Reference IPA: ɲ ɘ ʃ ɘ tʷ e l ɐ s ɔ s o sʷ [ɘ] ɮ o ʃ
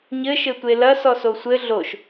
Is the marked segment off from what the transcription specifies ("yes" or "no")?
no